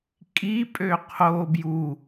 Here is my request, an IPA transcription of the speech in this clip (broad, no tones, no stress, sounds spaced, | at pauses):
kʼ i pʼ ø qʰ o b j u